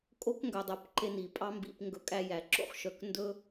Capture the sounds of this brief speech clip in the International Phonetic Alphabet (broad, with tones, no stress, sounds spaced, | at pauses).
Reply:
kʼ o˦ k ŋ ɡ œ˧ dˤ œ˦˨ p ǃ e˦ n i˨ pʼ ɑ˦ m b ḭ˧ p ŋ ɡ ɵ˧ kʼ æ˧ j æ˨ ǁ o̰˦ χ ʃ œ˨ k n d ɵ˦